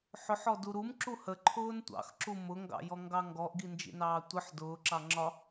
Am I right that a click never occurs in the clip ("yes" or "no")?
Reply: no